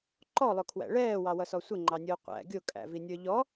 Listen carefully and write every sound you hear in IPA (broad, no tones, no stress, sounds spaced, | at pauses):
ǃ ɔ lˠ ʊ kʰ w æ̰ ɭ ɛː w ɑ w ʌ s ɔ sʷ ɪ ŋ͡ǃ ɑ nʲ ʊː qʷ æ̰ ɡʲ ʊ kʼ æ̰ v i nʲ ə˞ ʎ ɔ